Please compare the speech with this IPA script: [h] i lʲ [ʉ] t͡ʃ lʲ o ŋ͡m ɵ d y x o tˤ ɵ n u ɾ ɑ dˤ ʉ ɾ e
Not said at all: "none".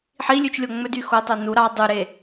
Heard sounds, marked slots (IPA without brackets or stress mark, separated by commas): ħ, ʉ